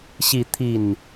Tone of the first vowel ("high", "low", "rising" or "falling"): rising